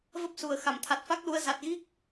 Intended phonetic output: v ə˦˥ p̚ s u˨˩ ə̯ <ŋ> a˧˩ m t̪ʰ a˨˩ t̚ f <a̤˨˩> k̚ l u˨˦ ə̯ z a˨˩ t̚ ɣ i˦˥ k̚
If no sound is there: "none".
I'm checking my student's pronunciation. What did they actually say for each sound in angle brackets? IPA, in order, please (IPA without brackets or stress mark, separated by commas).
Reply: x, a˦˥